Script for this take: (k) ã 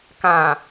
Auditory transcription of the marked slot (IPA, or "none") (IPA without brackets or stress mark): k